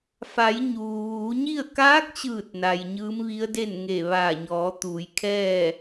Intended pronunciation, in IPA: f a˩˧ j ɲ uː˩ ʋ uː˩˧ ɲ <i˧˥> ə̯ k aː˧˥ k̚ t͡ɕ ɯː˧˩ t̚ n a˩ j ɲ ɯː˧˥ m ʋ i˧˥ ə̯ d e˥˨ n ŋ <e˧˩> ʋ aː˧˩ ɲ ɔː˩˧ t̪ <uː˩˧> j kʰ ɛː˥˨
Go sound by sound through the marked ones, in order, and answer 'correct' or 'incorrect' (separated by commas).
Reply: incorrect, correct, correct